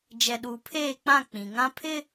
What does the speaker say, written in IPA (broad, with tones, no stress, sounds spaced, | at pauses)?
d͡ʒ ɛ˨ ɗ uː˨ pʰ eː˦˨ k͡p ã˦˨ k͡p ĩ˨ ŋ ã˦ pʰ ɪ˦